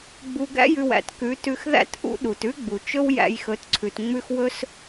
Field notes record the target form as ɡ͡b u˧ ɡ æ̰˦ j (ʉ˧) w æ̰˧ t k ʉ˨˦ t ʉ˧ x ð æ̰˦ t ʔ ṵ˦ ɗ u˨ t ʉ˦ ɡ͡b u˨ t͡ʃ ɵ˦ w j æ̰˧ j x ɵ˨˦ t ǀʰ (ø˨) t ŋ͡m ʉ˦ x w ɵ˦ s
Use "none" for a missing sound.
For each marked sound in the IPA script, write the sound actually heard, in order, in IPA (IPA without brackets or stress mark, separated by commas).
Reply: ʉ˧, ʉ˨